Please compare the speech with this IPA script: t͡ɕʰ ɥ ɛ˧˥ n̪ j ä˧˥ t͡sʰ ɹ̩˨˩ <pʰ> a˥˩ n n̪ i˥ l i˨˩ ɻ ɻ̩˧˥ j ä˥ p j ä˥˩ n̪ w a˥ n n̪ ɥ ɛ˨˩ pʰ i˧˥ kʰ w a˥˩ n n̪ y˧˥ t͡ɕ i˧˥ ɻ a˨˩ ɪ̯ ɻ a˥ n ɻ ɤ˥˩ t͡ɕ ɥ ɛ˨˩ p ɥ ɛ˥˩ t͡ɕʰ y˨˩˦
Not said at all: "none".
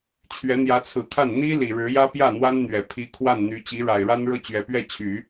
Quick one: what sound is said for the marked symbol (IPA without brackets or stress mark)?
kʰ